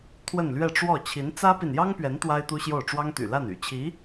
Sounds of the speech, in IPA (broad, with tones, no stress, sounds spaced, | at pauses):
t̪ʰ w ə˥˧ n l ɥ ɛ˥˧ ʈ͡ʂ w ɔ˥˩ t͡ɕʰ i˧˥ n t͡s ä˥ p i˨ n j ɑ˥ ŋ p ɥ ɛ˧˥ n t̪ w a˥ ɪ̯ t̪ u˥ ɕ j o˥˩ ʊ̯ ʈ͡ʂ w ɑ˥ ŋ t̪ y̰˨˩ l a˥˩ n y̰˨˩ t͡ɕʰ i˧˥